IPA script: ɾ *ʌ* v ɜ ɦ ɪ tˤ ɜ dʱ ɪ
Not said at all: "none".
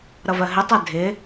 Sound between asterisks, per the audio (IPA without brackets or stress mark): ʌ